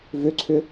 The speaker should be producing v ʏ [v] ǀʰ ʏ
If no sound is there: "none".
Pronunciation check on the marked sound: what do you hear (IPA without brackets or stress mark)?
none